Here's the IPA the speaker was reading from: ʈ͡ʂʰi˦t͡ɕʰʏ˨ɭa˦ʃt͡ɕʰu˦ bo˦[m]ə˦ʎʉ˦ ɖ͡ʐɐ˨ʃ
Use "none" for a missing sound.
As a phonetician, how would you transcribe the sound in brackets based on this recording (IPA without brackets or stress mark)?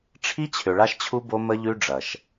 m